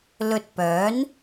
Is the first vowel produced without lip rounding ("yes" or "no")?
no